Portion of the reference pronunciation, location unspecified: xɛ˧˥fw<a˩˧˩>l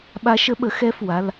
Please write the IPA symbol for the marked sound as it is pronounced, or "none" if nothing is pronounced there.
a˩˧˩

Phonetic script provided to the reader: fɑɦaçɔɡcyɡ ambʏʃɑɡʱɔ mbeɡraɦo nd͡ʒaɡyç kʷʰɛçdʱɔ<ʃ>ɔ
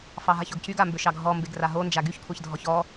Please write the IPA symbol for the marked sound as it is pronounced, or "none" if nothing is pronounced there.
ç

